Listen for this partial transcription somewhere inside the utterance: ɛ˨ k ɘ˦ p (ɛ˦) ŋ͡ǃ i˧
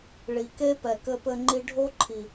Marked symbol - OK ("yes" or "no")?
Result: no